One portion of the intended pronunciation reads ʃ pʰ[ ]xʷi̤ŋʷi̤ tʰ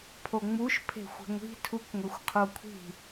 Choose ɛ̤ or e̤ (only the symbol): e̤